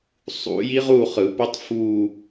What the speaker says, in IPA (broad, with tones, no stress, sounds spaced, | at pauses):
sˤ ṵ˨˩˦ j i˦˥ ʁ u˥˧ χ ɯ˨˩˦ p o˦˥ tˤ f uː˥˧